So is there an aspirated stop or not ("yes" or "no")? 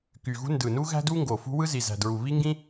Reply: no